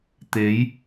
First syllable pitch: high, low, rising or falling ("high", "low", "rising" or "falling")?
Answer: rising